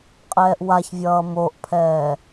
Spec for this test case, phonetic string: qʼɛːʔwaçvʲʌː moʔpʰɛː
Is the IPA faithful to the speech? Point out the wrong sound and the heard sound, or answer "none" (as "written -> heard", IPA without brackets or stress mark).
none